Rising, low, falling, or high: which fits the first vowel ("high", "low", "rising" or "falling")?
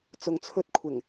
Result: low